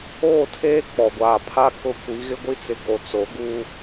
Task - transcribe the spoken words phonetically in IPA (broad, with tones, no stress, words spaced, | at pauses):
oː˦˨tʰeː˦ k͡pɔ˨ɡʷaː˨pʰa˦kʊ˦ kʷi˨˦ɣɪ˦ɡʷi˦t͡sɪ˨ ɡo˨t͡so˨˦ ɡu˦